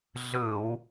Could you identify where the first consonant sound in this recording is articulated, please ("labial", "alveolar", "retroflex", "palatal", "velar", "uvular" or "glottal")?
alveolar